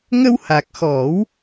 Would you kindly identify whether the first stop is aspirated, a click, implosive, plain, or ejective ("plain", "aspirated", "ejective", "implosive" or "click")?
plain